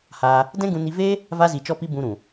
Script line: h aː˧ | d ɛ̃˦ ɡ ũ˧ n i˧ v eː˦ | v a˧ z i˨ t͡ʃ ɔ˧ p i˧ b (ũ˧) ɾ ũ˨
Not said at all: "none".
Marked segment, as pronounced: ũ˧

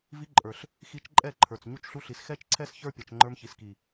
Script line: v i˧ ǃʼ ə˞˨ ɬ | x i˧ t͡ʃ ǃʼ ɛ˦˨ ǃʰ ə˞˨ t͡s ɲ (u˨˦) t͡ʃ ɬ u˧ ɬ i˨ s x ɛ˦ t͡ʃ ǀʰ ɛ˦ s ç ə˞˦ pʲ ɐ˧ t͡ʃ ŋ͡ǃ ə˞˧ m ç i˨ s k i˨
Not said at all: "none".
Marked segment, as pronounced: u˧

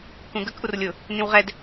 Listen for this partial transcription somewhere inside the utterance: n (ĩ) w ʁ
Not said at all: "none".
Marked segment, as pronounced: ĩ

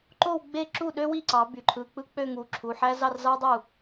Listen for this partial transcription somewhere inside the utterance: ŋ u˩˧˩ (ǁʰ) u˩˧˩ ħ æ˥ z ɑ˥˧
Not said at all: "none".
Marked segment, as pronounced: ǁʰ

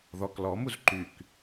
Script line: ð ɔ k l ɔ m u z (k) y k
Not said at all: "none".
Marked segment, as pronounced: ǃ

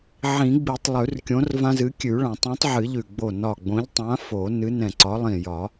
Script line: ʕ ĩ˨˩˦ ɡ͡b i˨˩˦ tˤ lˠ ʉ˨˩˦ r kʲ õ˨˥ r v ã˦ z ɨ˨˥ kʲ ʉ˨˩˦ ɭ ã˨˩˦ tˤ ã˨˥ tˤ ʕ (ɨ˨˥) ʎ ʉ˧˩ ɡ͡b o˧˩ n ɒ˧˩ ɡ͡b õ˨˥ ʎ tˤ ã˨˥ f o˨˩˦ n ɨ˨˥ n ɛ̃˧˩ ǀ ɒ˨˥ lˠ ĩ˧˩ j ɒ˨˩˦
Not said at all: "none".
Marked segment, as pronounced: ɨ˨˩˦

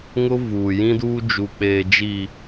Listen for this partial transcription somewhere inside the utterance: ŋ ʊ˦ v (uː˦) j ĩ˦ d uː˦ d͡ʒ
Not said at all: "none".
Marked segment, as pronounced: uː˨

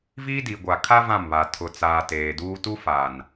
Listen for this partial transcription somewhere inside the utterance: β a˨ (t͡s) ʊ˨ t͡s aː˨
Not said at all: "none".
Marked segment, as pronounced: tʰ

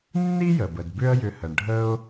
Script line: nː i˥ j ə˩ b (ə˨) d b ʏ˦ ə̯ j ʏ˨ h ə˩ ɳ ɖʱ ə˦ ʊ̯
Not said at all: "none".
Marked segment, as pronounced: ə˩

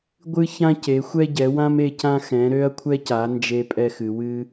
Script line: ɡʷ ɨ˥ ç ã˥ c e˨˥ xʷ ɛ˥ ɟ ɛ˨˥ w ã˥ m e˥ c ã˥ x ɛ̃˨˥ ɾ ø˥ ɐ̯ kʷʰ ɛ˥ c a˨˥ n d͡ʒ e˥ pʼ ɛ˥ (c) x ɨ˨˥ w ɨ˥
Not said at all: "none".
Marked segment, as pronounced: none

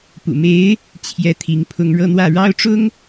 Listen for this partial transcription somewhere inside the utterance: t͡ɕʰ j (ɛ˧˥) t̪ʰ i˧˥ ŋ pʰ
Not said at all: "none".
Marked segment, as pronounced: ɛ˥˩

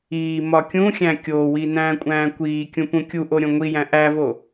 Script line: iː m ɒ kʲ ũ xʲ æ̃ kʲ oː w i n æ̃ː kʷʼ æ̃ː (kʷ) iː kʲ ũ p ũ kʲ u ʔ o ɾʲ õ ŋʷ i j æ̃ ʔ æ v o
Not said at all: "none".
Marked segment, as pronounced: kʷ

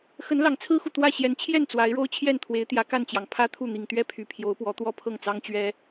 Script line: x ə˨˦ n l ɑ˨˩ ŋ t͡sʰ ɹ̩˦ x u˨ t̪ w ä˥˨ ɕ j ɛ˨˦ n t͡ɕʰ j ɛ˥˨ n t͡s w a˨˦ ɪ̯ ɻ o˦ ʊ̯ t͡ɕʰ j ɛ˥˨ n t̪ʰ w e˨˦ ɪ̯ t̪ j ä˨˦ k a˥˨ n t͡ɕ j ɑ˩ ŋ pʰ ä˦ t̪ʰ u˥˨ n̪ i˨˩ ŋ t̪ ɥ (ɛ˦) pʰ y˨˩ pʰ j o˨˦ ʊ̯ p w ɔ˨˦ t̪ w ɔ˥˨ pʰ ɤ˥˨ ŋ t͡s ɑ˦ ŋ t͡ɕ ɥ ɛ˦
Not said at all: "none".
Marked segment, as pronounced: ɛ˥˨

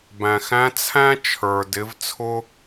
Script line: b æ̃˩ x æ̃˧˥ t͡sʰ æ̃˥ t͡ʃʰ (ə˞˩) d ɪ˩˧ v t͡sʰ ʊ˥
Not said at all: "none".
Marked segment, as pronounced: ə˞˩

